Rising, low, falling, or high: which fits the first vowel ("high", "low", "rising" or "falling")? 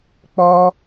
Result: high